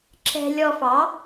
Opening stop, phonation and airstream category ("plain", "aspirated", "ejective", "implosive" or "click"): click